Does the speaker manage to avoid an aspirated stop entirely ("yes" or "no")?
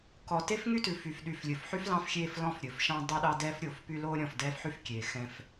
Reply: yes